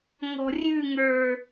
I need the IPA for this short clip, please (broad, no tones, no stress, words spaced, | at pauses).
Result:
ŋɔ̤rʲʉŋə˞